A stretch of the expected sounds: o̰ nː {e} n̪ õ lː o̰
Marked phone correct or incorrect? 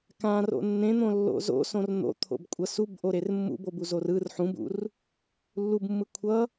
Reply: incorrect: ẽ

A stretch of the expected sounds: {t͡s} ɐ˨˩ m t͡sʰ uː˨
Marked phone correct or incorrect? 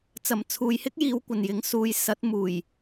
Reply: correct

